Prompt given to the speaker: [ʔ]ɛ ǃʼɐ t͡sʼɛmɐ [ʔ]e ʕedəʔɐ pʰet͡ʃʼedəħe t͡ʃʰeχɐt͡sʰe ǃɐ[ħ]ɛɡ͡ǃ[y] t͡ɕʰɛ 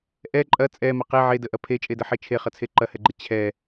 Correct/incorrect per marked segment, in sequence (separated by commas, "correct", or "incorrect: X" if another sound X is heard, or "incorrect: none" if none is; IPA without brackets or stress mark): correct, incorrect: q, incorrect: h, incorrect: e